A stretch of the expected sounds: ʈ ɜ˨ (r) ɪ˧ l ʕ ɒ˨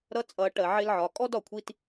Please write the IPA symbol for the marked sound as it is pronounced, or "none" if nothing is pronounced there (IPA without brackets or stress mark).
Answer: ʕ